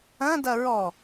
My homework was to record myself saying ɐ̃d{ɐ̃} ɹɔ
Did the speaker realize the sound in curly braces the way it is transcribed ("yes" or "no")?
no